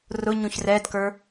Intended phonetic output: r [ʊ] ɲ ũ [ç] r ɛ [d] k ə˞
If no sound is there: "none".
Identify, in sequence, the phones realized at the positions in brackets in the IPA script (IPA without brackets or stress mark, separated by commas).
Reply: ʊ, ç, d